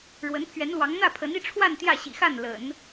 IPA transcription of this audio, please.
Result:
ɻwə˧˥npʰɥɛ˧˥nlwɑ˧˥ŋ n̪ä˥˩pʰə˧˥ni˥˧ʈ͡ʂʰwa˥˧n t̪jä˥˩ɕḭ˨˩xa˥˩n lə̰˨˩˦n

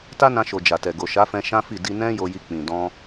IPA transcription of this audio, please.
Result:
ta˦nã˧ʃo˨ d͡ʒa˨tɛ˨ ɡo˨ʃa˨˦fɛ̃˧ ʃã˦fi˦˨ di˧nɛ̃˦ jo˧ji˧k͡pĩ˨ dɔ̃˧

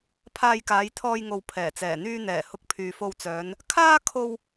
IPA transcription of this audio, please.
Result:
pʰaː˧jkaː˨˧jt̪ʰɔː˧jŋo˨w pʰɛː˨˩t͡sɛː˨˩n̪yː˧n̪ɛː˨˩ hʊ˧k̚pʰyː˨fo˧wt͡sœː˨˧n | kʰaː˥ kʰo˧w

